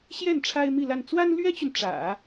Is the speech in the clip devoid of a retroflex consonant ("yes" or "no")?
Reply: no